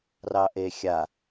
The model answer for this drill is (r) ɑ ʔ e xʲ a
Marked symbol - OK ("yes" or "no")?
yes